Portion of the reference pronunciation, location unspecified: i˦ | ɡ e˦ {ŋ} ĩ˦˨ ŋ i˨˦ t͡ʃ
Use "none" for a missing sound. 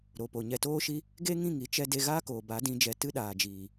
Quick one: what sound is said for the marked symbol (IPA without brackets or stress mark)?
ŋ